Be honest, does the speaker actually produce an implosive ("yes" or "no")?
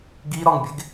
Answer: no